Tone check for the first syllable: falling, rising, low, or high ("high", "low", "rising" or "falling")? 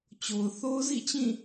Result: low